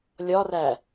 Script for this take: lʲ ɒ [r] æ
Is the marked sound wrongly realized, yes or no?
no